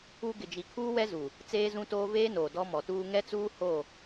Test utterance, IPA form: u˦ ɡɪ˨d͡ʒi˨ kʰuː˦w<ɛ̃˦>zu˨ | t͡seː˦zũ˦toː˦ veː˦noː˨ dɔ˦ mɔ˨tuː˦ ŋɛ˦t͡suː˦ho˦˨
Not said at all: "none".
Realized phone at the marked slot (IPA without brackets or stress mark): ɛ˦